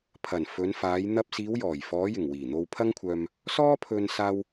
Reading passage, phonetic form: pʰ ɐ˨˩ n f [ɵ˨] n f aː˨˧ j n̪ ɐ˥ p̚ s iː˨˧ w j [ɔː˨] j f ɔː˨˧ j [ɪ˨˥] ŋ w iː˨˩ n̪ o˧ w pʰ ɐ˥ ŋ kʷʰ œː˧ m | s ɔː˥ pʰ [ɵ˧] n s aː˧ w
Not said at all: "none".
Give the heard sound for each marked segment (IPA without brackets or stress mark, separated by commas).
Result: ɵ˨˧, ɔː˨˩, ɪ˨˩, ɵ˧